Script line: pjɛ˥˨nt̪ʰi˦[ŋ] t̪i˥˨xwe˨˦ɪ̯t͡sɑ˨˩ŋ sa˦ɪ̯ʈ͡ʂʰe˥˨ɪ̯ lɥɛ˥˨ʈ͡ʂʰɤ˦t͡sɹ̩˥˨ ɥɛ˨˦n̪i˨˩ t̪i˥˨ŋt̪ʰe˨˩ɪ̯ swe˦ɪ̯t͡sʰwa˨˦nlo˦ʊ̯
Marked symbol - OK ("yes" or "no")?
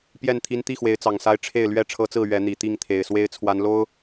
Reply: no